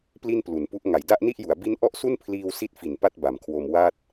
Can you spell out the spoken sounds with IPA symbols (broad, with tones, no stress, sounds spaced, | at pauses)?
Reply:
p l i˥˩ n p l u˩˦ n p u˦˥ ʔ ŋ a˩˦ j d a˥˩ ʔ n i˥˩ ʔ j u˩˦ a̯ b i˦˥ n ʔ ɔ˥˩ ʔ s u˥˩ n pʰ l iː˧ w s i˦˥ t̚ f i˨˩ n p a˥˩ t̚ b a˩˦ m kʰ w o˧ m w a˥˩ t̚